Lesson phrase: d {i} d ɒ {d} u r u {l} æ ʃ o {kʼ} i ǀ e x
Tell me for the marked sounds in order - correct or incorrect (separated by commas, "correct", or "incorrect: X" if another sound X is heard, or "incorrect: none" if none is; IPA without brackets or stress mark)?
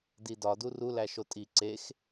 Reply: correct, correct, correct, incorrect: tʼ